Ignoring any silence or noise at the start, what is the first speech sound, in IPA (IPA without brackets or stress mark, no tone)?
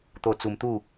t̪